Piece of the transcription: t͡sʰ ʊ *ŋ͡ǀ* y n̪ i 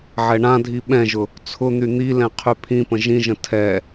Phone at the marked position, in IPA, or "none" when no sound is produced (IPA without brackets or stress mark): n̪